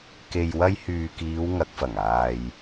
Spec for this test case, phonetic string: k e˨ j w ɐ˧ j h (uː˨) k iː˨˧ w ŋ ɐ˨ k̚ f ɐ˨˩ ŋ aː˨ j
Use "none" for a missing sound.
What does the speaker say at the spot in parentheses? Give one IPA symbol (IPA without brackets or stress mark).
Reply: yː˨